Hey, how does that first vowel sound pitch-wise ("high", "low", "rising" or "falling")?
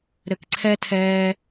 high